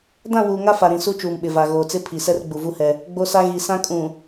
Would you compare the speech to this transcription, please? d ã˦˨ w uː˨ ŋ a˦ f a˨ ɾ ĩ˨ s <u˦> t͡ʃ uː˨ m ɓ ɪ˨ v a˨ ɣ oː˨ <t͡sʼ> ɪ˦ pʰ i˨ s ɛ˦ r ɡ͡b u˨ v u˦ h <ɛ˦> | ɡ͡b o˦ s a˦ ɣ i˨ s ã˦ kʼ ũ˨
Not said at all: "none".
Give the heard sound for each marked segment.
u˦, t͡s, ɛ˦

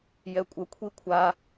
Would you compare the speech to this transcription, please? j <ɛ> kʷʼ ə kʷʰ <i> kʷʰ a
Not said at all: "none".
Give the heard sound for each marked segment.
ɛ, i

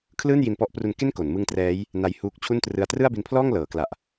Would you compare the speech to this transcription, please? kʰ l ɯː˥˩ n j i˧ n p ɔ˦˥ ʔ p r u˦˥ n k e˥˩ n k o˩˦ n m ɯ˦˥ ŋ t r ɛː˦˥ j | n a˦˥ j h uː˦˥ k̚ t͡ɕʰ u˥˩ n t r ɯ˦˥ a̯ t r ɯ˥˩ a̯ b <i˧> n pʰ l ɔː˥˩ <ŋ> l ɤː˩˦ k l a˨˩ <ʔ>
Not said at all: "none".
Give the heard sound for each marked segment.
i˧, ŋ, ʔ

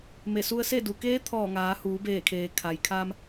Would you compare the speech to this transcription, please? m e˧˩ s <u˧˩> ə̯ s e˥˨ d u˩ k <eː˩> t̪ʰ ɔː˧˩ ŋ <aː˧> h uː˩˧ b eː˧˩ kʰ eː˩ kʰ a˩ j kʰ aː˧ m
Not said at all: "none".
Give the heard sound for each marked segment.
u˧, eː˧˥, aː˩˧

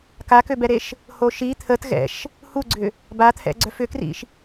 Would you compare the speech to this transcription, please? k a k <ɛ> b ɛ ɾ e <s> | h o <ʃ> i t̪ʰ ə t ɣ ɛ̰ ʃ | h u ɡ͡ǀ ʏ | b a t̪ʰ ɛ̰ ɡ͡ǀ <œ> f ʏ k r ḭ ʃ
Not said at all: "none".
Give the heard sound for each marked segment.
ø, ʃ, ʃ, œ

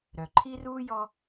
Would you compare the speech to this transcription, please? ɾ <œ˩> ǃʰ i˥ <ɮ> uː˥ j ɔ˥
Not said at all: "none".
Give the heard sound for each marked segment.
œ˩, r

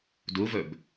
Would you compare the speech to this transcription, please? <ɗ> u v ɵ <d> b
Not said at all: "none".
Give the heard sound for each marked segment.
d, none

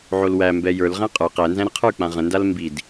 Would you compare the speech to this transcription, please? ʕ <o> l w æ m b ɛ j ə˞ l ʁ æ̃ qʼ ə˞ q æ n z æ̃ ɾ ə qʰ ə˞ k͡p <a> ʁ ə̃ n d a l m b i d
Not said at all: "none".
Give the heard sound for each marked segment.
o, ã

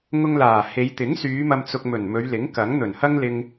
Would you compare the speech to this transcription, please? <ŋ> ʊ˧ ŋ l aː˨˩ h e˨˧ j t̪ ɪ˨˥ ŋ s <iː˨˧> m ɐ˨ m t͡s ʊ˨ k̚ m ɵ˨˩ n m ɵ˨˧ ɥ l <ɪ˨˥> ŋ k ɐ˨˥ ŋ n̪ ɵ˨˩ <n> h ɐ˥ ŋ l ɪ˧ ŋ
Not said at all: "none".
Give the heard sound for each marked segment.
ŋ, yː˨˧, ɪ˨˥, n

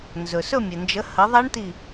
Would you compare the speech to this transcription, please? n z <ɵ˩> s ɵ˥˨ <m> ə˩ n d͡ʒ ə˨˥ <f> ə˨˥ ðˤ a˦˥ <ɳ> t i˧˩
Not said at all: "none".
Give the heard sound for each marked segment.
ɵ˩, mʲ, h, ɳ

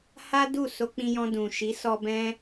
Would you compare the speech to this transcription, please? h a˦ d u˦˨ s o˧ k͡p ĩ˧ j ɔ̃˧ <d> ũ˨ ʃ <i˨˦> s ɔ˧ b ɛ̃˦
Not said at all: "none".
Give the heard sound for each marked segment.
d, i˨˦

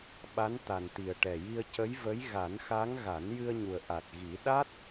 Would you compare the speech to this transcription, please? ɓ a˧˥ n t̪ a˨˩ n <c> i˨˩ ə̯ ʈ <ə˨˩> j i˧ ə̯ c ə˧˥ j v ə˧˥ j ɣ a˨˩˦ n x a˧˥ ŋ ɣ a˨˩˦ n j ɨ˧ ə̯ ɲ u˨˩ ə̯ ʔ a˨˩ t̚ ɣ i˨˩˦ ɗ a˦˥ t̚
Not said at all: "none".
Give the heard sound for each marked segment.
t̪, ɛ˨˩

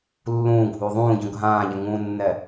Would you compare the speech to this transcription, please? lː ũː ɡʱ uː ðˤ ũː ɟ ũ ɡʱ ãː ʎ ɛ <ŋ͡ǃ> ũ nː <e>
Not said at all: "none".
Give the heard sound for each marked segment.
ŋ, ɛ

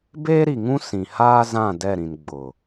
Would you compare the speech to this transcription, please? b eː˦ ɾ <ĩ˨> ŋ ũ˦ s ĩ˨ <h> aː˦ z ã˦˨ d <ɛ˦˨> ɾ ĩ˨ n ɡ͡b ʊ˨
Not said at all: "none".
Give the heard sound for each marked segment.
i˨, h, ɛ˦˨

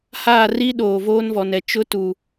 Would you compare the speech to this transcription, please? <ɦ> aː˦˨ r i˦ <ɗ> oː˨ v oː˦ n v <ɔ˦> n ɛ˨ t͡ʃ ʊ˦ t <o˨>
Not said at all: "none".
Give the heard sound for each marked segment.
h, ɗ, ɔ˨, u˨

